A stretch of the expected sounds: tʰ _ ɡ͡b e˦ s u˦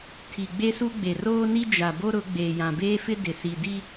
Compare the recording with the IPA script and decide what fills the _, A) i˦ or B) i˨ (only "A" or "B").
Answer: B